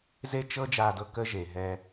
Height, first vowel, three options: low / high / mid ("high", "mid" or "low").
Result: mid